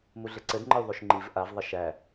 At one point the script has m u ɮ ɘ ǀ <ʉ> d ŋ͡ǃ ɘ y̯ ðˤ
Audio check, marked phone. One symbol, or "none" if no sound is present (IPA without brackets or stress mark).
ɘ